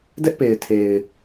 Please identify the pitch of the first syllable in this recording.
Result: high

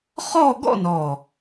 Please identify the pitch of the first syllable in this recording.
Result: falling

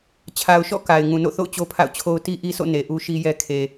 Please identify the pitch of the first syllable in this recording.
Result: low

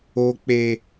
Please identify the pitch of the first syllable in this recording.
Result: low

